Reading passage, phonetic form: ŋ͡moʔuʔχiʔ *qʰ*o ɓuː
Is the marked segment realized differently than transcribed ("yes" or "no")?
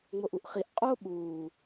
yes